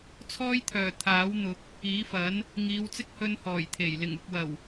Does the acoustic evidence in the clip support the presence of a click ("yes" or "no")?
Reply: no